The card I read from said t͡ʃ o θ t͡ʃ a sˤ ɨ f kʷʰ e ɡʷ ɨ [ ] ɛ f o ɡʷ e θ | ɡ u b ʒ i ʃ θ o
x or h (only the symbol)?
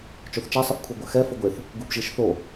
x